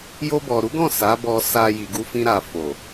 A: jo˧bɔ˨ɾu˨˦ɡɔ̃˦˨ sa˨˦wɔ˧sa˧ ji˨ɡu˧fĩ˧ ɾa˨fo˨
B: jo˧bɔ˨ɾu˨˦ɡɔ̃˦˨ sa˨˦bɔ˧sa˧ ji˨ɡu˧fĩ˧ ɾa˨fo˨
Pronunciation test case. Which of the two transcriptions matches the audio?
B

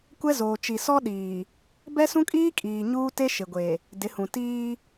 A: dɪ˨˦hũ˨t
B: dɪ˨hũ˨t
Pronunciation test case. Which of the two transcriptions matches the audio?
A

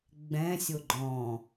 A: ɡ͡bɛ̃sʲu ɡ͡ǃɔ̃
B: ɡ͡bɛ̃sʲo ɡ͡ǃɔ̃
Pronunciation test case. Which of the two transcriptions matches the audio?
B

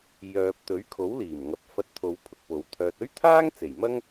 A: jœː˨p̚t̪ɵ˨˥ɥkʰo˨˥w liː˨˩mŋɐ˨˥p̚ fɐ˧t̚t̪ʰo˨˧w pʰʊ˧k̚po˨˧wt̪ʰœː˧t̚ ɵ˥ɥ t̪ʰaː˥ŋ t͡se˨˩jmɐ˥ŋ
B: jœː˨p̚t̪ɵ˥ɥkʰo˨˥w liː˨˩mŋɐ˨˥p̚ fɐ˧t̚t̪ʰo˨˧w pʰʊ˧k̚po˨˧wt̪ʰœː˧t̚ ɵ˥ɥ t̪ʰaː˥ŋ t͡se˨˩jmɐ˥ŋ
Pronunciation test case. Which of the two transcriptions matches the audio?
A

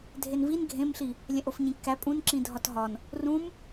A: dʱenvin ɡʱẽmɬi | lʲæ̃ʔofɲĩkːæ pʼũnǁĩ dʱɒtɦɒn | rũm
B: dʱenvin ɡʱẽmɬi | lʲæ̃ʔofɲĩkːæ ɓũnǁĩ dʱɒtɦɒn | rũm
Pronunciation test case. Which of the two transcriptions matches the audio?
A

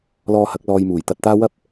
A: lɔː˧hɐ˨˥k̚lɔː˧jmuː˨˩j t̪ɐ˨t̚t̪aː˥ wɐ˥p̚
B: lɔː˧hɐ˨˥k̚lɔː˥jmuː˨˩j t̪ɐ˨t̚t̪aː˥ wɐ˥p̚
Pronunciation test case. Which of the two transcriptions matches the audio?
A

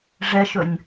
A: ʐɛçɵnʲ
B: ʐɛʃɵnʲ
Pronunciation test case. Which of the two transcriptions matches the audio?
B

